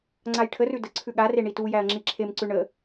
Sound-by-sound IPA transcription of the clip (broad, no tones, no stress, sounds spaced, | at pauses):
ŋ͡ǀ a j ʈʰ ə r ʉ d ə ǀʰ ʉ ɠ a r e ɳ i t u j æ ɐ̯ ŋ͡ǁ i ǁʰ e m ǀ ʉ ɳ ə